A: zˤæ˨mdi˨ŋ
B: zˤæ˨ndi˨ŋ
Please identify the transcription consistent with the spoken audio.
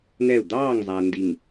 B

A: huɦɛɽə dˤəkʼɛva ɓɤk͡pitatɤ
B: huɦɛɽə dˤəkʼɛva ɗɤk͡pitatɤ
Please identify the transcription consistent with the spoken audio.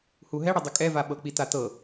A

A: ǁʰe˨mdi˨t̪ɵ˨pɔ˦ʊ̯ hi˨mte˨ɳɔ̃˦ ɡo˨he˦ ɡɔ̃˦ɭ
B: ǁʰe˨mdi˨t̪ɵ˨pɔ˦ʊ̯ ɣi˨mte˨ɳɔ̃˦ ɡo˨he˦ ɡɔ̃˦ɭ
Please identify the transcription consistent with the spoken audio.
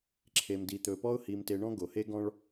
A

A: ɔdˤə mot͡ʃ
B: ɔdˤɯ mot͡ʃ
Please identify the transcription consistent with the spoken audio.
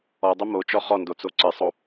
A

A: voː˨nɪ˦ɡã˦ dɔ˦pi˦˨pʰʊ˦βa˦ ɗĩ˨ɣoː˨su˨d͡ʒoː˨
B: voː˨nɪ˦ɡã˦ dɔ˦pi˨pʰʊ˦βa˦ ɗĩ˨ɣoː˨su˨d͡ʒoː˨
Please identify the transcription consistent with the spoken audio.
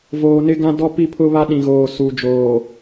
A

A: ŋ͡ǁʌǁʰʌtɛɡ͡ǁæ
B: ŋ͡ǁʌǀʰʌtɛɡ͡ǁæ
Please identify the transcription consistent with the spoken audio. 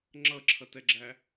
A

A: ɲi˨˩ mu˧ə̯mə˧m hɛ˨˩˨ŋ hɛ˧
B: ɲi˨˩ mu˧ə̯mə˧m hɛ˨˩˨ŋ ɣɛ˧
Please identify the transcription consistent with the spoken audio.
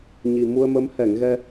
B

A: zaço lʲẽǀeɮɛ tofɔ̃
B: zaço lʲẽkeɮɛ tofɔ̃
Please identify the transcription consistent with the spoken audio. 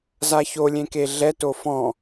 B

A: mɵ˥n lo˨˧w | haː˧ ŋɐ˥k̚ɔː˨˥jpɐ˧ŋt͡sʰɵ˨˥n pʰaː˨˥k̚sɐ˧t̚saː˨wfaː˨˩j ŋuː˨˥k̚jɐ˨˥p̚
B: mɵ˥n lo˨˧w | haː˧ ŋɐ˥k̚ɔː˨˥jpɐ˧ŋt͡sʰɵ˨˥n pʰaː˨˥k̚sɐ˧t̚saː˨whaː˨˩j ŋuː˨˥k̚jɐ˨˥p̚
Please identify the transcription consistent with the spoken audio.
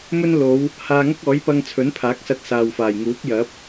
A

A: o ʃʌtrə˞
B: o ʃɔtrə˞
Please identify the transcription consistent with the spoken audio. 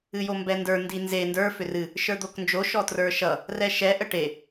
B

